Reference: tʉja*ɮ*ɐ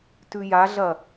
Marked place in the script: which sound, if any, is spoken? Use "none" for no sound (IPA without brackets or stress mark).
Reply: ɮ